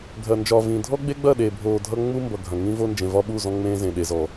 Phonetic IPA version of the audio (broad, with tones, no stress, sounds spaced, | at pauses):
ɡʱ ɐ˨ n d͡ʒ ɒː˨ v ĩ˨ dʱ ɔ˦ ɡ͡b e˦ ɡ͡b ɐ˦˨ ɗ e˨ bʱ oː˨ dʱ ʌ˦ ŋ͡m u˦ m b ʌ˨ ɡʱ ɐ̃˨ ŋ ĩ˦ v o˦ n d͡ʒ ẽ˨ v ɒ˦ ɓ u˦˨ z ɔ̃˦ ŋ͡m ẽː˦ z ẽ˨ ɗ e˨ z ɔ˨